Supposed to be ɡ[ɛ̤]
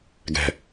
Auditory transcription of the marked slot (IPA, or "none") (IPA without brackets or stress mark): ɛ̤